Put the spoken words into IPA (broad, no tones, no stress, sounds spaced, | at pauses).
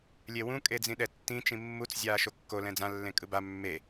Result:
lʲ e w ũ kʼ e d͡z ĩ ɗ ɛ tː ĩ t͡ʃ ĩ mː u t͡s zʲ aː ʃ o kː o l ɛ̃ d͡z ã lː ẽ kʼ ɯ b a mː e